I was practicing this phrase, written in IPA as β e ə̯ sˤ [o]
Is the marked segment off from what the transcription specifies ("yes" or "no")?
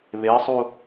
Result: yes